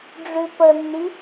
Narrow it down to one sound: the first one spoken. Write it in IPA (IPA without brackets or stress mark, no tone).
ɖ͡ʐ